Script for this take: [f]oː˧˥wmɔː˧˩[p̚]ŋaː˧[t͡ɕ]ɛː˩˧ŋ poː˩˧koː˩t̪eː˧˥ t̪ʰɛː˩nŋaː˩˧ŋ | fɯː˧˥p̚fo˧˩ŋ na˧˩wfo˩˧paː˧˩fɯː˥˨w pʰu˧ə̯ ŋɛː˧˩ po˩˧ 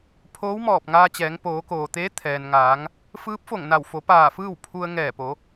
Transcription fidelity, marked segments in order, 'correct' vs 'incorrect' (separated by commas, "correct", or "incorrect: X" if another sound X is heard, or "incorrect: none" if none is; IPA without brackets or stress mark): incorrect: pʰ, correct, correct